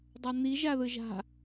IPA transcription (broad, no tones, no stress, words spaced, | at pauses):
dˤan̪i ʒaðɯʒa̤